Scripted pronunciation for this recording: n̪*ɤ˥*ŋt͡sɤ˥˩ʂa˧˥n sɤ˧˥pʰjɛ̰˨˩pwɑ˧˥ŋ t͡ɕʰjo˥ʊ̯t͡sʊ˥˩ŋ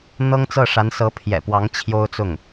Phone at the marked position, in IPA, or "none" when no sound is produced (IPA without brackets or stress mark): ɤ˥